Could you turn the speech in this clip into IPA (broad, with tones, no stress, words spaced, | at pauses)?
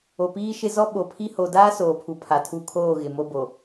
o˨piː˦ʃɪ˦ zɔ˦ɓo˨pʰi˦ ho˨daː˦ soː˨pʰu˨ pʰa˨tʰu˦˨ kʰoː˦˨ ɣɪ˨mo˦bo˨